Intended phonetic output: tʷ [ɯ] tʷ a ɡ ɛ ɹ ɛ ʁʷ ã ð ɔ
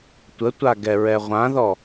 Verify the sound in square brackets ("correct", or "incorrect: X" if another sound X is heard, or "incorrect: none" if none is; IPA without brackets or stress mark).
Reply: incorrect: ə